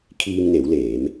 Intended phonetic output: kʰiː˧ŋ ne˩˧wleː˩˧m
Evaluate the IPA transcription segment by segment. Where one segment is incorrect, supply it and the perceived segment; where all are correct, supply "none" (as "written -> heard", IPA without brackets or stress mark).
none